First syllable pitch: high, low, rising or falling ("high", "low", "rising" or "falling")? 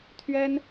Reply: high